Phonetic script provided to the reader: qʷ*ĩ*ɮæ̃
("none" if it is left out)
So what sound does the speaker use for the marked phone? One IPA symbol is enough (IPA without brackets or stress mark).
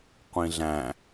ĩ